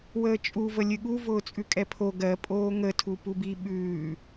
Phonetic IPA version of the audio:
w əː t͡ʃʼ u v ə lʲ ɨ ɠ u v ʊː t͡sʼ ʉ kʼ ɛ pʰ o ɡ ɜ pʼ oː ŋ ə tʰ u p u b i ɓ ʉː

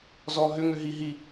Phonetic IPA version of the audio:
z ɔ ɦ ʏ ŋ ʏ ɦ i ɦ i

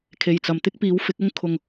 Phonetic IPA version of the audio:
kʰ e˨˩ j t͡s ɐ˨˩ m t̪ ɪ˥ k̚ p iː˨˥ w f ɪ˨˥ k̚ ʊ˥ ŋ kʰ ʊ˨ ŋ

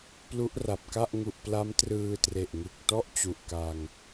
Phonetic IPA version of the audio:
p l u˦˥ ʔ r a˨˩ p̚ k a˥˩ ʔ ŋ u˨˩ ʔ p l a˦˥ m t r ɯː˧ t r e˨˩ ʔ ŋ ɯ˨˩ k̚ t ɔ˥˩ ʔ t͡ɕ u˨˩ ʔ k a˧ ŋ

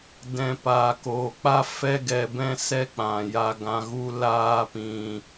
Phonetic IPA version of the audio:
d ɛ̃˨ p aː˨ k oː˨ k͡p a˦ f ɛ˦ ɡ ɛ˧ b ɛ̃˦ s ɛ˦ k͡p ã˨ j a˧ ɡ ã˧ ɣ u˦ l aː˦ p ĩ˧

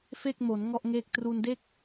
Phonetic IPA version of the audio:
f e˥˩ k̚ m o˩˦ n ŋ ɔ˥˩ ʔ ŋ e˥˩ k̚ t r u˧ n d e˥˩ k̚

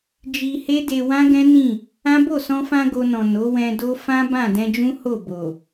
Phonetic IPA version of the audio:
d͡ʒ i˧ h e˦ d e˧ w ã˦ ɡ ɛ̃˦ n ĩ˦˨ | ã˦ b o˦˨ s ɔ̃˧ f ã˧ ɡ o˧ n ɔ̃˨ n o˨˦ w ɛ̃˧ d o˦ f ã˦ b ã˦˨ d ɛ̃˧ d͡ʒ ũ˦ h o˦˨ b o˨

